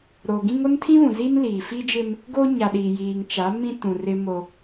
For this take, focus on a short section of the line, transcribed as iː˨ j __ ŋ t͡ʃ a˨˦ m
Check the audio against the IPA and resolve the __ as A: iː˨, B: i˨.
A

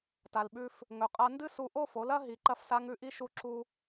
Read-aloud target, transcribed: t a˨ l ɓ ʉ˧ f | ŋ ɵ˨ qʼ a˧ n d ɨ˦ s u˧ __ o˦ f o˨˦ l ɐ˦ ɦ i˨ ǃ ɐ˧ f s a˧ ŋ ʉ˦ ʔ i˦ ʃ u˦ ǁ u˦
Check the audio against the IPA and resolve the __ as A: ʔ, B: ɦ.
A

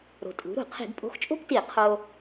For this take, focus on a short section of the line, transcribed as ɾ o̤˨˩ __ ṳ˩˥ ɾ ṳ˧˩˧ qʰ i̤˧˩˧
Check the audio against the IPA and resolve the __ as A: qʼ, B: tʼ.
B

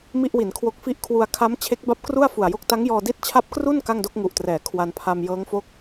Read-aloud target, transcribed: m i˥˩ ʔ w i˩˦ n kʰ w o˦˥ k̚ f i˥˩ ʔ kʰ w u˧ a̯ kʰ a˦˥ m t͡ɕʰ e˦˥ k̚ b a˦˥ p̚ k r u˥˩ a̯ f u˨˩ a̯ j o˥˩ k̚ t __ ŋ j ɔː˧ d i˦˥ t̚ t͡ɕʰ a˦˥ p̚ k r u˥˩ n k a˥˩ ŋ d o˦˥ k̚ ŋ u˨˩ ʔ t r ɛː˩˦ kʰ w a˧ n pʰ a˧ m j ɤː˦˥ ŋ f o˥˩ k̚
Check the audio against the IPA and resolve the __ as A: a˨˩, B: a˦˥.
B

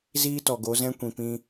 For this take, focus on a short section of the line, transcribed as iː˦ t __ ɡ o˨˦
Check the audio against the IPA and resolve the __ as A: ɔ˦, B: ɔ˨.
B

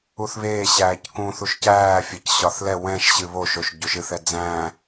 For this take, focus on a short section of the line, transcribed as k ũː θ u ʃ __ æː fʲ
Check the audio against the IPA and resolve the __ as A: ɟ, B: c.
B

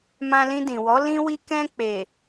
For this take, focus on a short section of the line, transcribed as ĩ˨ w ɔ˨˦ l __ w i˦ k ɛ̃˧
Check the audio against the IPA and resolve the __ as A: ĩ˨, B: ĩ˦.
B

